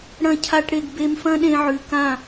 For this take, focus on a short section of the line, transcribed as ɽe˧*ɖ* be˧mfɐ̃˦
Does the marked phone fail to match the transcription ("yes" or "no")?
yes